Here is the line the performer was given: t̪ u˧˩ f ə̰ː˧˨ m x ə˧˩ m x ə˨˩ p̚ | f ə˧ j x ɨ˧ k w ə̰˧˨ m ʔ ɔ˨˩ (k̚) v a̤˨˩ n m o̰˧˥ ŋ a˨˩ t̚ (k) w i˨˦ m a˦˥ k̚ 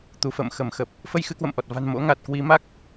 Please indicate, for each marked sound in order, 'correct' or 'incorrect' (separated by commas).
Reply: incorrect, correct